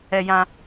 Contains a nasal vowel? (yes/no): yes